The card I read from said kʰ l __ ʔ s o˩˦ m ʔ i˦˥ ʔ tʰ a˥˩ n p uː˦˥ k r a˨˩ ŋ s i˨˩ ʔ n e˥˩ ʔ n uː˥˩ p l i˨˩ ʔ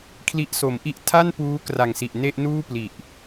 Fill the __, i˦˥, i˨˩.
i˦˥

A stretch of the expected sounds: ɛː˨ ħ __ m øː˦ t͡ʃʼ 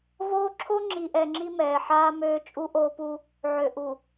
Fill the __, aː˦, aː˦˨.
aː˦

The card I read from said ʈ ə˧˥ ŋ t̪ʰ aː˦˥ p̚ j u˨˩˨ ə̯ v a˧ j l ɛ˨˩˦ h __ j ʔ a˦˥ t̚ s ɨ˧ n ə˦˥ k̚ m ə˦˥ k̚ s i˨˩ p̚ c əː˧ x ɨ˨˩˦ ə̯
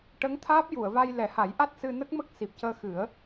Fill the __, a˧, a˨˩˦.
a˨˩˦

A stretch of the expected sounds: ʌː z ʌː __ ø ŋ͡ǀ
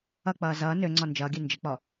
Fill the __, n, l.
n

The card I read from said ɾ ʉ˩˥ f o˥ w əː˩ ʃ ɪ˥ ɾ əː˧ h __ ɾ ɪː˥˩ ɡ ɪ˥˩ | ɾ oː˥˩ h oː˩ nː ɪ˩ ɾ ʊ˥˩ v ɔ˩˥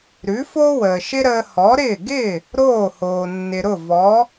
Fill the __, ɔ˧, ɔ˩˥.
ɔ˩˥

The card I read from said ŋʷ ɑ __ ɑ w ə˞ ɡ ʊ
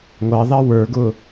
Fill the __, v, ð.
ð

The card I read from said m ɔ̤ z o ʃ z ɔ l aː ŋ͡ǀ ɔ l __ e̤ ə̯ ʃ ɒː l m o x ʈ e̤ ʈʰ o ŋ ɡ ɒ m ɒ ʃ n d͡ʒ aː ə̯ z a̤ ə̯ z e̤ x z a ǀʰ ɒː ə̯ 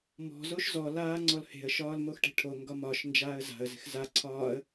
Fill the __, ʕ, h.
h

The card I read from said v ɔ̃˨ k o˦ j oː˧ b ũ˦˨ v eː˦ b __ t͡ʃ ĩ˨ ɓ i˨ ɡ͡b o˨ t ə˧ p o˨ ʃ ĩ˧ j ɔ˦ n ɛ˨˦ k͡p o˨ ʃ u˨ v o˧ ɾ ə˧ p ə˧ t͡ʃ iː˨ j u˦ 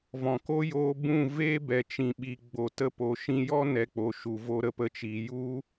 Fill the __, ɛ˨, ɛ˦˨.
ɛ˨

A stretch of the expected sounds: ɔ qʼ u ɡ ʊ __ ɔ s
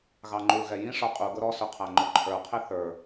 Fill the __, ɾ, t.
ɾ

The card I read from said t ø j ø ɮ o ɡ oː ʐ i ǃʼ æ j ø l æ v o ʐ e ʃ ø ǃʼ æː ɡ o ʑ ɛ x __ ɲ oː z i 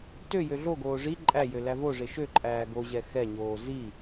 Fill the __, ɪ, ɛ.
ɛ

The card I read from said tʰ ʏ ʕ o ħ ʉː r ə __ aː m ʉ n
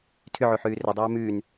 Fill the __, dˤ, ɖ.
dˤ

